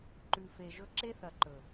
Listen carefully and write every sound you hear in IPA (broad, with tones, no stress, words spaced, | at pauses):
ǃʉ˨fe˨ʒɵ˦ ǁe˦θɐ˨ǃɵ˨